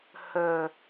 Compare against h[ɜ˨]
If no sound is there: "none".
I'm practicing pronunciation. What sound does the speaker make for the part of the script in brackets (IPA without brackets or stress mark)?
ɜ˨